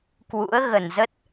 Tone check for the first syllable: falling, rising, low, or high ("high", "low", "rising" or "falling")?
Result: rising